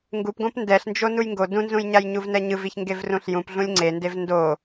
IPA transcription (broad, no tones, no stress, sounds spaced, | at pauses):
ŋ ɡ u p ɡ õ p n d ɛ ɬ n d͡ʒ o n u j ŋ ɡ o d ũ n z ũ j ɲ a j ɲ u v n ɛ ɲ ɯ v i ç ŋ ɡ e v r ũ ɬ j ũ p ɮ ũ lʲ ŋ͡ǀ e n d e v n d o